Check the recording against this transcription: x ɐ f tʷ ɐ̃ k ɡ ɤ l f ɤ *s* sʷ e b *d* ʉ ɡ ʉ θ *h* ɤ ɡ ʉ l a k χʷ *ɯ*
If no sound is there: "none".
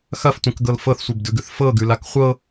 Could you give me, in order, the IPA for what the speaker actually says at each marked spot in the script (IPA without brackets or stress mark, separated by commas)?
θ, d, f, ɤ